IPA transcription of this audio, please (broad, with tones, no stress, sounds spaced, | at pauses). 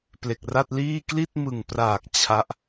p l e˨˩ k̚ r a˥˩ t̚ l iː˥˩ k l i˥˩ t̚ m ɯ˨˩ ŋ p r aː˨˩ k̚ t͡ɕʰ a˦˥ ʔ